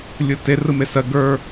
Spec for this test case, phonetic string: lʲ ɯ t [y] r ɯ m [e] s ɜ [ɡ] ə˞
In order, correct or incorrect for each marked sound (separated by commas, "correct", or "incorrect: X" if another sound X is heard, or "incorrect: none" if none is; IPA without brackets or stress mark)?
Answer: incorrect: e, correct, correct